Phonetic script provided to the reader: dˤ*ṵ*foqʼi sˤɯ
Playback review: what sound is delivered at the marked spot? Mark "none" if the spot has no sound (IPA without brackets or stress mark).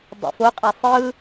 ṵ